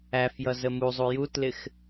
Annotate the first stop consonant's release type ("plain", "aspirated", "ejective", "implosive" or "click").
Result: plain